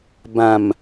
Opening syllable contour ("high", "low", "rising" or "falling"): low